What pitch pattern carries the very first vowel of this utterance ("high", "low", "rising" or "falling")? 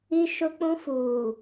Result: high